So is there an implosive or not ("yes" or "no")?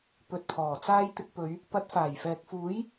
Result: no